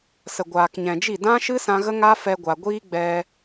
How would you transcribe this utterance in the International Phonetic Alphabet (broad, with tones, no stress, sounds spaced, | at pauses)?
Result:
s ə˨ ɡʷ aː˨ k ɲ ɛ̃˨ d͡ʒ i˦˨ d ã˦ ʃ ɨ˦ s ã˧ ɣ ə˦ ŋ a˦ f ɛ˧ ɡʷ a˨ ɡʷ iː˦ ɡ͡b ɛ˧